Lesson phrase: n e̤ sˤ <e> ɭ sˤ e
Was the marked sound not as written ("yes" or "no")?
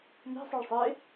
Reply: yes